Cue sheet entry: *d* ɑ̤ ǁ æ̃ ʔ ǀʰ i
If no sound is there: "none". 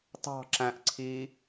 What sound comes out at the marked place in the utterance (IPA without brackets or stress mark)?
t